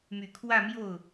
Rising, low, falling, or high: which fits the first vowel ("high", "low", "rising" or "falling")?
low